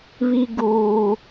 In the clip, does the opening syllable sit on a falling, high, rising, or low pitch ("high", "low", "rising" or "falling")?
high